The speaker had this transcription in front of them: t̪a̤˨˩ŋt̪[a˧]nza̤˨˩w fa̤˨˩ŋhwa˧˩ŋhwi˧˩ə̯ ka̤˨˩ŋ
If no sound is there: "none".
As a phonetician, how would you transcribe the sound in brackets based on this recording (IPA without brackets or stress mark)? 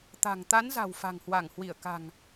a˨˦